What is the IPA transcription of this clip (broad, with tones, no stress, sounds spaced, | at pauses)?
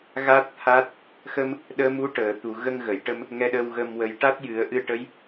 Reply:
ɣ a˦˥ t̚ t̪ʰ a˦˥ t̚ | x ə˧ m | ɗ əː˧ m u˧˥ ʈ əː˨˩˨ t̪ u˨˩˨ ɣ ə˧ ŋ ɣ ə˨˩˨ j ʈ ə˧ m | ŋ ɛ˧ ɗ ə˧ w ɣ ə˧ m w ə˧˥ j ʈ a˦˥ t̚ j ɨ˨˩˦ ə̯ ʔ ɨ˧ ʈ ə˧˥ j